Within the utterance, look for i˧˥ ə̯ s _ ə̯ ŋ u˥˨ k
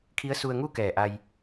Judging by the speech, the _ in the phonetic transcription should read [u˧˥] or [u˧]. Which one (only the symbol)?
u˧